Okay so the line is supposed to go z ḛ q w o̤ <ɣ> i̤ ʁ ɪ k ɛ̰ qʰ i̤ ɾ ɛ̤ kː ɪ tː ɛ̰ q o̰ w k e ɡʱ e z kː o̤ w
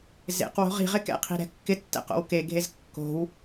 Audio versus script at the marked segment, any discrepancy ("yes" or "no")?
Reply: yes